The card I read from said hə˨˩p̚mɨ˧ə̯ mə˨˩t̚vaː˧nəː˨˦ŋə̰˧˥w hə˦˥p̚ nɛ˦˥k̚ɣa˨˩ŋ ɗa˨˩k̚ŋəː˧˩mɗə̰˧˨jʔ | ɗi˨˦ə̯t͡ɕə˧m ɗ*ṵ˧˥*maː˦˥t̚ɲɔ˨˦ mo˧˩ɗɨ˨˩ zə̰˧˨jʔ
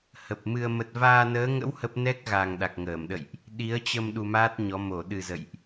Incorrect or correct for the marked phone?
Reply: incorrect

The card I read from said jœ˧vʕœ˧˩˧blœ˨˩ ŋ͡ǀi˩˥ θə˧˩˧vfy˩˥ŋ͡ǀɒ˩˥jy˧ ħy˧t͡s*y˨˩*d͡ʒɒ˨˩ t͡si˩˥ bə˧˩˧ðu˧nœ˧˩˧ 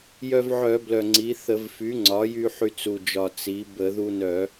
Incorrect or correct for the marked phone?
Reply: incorrect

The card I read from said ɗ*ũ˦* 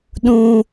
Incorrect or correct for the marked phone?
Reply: correct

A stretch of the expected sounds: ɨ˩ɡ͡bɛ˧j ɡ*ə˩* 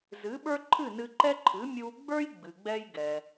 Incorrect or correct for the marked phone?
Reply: incorrect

